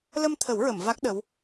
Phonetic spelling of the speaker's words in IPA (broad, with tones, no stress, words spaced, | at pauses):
lə˧mt̪ʰə˨˩˦wɹə˨˩˨m va˦˥k̚ ɗə˧˥w